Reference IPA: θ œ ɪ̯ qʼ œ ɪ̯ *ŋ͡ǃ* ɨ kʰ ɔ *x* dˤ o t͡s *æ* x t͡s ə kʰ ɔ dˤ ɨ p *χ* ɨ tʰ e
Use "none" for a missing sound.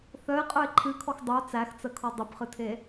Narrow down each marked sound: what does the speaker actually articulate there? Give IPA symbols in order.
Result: ǃʰ, x, æ, χ

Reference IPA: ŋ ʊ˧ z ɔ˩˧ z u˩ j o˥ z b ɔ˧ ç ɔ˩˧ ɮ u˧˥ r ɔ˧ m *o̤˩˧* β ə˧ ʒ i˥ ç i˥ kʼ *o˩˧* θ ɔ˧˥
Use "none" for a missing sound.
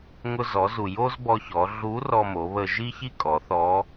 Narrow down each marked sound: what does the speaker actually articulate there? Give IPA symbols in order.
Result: o˩˧, ɔ˩˧

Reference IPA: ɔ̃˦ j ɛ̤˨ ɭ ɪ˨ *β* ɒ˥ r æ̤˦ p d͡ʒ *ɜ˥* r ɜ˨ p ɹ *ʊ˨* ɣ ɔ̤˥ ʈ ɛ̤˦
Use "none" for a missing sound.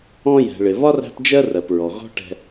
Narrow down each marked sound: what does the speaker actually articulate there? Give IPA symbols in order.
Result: β, ɜ˥, ɔ˨

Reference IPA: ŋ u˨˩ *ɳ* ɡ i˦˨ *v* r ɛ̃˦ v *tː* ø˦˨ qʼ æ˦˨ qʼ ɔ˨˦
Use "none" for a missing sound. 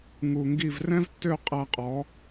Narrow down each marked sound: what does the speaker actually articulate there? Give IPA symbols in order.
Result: ŋ, v, tː

